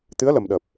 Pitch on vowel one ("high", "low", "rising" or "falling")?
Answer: rising